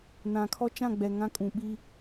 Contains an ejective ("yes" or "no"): yes